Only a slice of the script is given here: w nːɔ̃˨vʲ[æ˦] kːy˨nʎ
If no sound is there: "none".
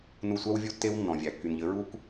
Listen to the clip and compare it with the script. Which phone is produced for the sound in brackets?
æ˨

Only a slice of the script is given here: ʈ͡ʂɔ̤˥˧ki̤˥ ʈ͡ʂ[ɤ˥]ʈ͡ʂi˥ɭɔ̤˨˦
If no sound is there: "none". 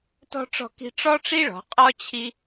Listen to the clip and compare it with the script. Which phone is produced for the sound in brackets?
ɔ˥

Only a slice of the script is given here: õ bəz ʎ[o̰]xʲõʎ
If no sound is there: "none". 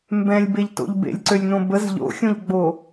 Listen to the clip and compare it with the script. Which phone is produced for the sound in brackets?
o̰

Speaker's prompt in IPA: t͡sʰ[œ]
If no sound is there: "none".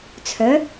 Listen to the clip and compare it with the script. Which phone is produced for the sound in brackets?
œ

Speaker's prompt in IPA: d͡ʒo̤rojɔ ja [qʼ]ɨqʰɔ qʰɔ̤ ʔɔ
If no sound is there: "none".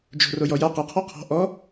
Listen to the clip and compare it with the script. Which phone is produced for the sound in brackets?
q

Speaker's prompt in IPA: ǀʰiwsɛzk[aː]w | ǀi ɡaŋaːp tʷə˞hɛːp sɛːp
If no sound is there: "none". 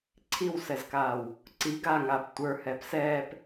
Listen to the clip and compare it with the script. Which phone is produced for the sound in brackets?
aː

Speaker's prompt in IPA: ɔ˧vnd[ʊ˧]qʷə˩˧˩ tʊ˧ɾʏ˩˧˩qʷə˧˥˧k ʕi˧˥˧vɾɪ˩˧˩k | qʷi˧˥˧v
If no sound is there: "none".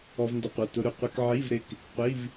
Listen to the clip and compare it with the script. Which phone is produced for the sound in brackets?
ʊ˧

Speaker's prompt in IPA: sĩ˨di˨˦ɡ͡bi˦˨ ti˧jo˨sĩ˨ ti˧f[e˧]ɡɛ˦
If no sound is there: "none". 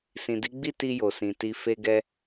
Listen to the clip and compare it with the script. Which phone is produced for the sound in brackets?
e˦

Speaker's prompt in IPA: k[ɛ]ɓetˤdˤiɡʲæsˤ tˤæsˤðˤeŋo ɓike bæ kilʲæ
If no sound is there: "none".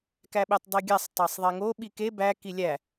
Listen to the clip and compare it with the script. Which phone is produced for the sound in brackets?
æ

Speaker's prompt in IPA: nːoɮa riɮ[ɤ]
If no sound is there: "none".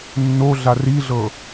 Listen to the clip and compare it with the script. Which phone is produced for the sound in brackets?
ɤ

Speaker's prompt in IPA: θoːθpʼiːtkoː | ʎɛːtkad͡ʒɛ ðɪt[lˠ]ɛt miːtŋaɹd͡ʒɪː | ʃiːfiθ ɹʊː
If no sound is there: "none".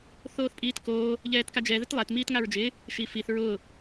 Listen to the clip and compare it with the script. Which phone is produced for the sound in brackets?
lˠ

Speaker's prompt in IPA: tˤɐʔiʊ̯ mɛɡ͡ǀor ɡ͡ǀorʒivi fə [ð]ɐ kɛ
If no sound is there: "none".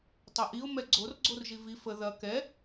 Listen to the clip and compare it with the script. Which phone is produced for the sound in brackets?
ð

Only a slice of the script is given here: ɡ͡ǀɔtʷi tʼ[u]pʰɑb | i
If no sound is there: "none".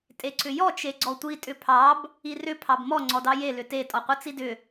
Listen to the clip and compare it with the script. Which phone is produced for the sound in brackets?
ʏ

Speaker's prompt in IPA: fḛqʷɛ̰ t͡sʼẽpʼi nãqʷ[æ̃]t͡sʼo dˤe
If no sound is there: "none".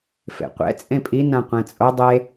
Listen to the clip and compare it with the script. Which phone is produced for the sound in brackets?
ɛ̃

